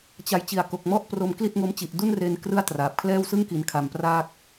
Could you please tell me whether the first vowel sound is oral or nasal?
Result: oral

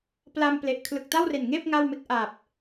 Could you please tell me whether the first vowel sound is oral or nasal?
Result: oral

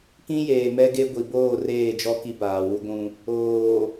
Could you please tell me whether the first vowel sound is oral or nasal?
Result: nasal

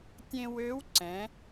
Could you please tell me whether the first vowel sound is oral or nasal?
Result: nasal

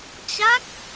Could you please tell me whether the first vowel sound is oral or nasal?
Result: oral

